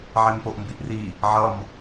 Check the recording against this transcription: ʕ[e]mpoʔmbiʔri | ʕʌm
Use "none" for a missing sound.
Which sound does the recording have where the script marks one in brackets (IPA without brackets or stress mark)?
e